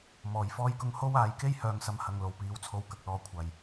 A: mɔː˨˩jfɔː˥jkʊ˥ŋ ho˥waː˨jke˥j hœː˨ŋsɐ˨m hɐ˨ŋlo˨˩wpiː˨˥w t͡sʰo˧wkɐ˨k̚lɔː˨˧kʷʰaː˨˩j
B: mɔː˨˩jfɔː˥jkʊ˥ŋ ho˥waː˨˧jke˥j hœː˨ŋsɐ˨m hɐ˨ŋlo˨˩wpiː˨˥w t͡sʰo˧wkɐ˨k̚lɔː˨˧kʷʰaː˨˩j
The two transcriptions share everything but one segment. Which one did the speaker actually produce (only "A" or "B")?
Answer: B